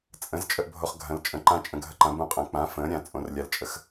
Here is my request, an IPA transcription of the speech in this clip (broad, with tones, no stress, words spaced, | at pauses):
t͡sʼə̃˨˥z t͡ʃʼə˧ʔbʱo˧χɡʱɐ̃˨˥lt͡ʃʼə̃˨˥ ǃã˧ t͡ʃʼə̃˧ɡʱə˧ǃã˨˥ bũ˧ qʼɐ̃˨˥ k͡pã˨˥ fə̃ː˨˥ɾʲã˨˥t͡sʼõ˧r lʲa˧lt͡ʃʼə˧x